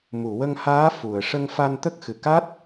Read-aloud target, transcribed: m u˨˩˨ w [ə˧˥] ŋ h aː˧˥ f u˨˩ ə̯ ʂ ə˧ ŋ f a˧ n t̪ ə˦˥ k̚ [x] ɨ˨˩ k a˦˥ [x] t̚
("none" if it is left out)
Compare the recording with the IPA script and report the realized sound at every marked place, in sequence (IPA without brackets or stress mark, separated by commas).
ə˧, x, none